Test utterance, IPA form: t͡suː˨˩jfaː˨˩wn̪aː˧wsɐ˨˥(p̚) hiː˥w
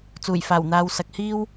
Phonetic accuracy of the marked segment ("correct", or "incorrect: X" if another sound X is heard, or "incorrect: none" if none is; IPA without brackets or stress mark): incorrect: k̚